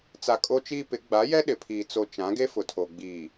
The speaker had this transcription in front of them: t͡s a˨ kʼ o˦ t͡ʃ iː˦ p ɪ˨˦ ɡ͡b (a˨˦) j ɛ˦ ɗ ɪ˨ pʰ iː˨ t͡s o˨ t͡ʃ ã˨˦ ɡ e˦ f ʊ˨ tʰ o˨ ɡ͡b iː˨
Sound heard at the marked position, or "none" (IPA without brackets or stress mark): a˨˦